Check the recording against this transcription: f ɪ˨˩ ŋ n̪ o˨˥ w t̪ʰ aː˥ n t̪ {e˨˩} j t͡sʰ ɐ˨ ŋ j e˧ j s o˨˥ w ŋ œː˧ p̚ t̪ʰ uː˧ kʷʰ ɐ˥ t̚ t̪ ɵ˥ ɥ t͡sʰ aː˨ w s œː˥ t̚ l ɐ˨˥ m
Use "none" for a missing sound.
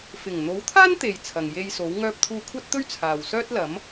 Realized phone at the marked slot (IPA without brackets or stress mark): e˨